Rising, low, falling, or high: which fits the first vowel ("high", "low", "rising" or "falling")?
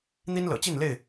high